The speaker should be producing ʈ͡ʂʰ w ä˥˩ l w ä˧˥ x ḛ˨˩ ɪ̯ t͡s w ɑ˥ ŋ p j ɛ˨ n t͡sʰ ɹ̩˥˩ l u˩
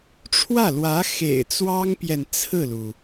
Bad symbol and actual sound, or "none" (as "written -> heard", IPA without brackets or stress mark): none